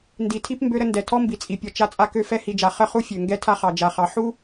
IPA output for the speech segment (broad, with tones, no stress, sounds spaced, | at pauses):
n d i˨ tʰ i˦ p m b ø˦ ɾ ə˦ n d ɛ˨ tʰ ɔ˦ m b i˨ t͡sʼ i˨ pʲ ɔ˨ t͡ʃ a˦ t͡sʼ a˦ k ø˦ f ɛ˦ h i˨ d͡ʒ a˨ χ ə˦ χ u˦ fʲ ø˨ ŋ ɡ ɛ˦ tʰ a˦ χ ɑ˨ d͡ʒ a˨ χ ɑ˨ ħ u˦